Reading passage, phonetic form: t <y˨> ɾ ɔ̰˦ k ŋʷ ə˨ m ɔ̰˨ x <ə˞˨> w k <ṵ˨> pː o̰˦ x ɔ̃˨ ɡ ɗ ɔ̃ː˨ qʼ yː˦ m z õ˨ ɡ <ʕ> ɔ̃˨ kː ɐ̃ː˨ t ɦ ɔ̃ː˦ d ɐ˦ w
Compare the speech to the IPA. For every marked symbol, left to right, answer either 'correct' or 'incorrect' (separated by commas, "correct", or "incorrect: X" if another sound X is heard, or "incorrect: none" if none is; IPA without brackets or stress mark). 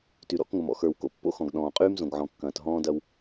correct, correct, incorrect: o̰˨, correct